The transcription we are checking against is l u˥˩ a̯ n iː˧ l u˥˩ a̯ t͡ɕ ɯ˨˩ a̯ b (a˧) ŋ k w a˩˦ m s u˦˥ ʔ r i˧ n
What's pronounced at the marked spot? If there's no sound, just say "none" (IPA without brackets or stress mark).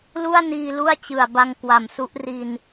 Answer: a˧